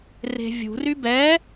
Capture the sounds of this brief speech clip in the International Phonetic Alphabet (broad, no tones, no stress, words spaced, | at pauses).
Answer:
re̤vʲṳry bɛ